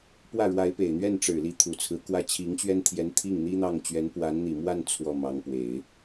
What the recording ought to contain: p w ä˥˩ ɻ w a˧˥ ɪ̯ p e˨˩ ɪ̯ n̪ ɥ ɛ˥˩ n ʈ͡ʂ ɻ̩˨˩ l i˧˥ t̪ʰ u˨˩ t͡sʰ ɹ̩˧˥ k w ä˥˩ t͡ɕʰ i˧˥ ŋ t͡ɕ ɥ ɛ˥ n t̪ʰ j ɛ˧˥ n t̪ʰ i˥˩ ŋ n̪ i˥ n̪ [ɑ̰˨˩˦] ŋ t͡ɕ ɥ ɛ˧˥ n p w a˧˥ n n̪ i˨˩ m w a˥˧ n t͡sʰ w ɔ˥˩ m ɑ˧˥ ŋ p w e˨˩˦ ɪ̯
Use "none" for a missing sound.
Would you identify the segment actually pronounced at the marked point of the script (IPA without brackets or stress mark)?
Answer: ɑ˥˩